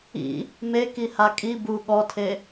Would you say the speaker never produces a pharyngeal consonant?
yes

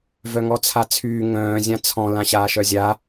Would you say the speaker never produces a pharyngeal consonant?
yes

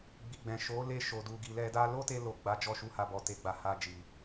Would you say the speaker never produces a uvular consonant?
yes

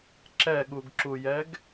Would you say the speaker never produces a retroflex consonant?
yes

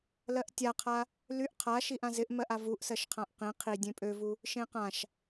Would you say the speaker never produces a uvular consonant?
no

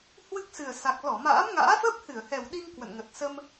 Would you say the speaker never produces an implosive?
no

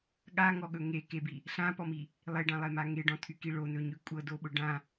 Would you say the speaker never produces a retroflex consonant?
no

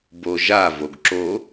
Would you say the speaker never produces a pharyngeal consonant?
yes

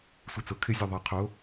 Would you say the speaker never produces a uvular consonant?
no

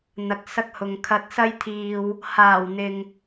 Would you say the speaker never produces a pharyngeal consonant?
yes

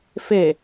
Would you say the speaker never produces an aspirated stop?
yes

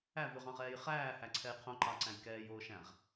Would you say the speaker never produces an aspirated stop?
no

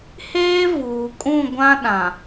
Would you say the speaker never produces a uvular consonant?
yes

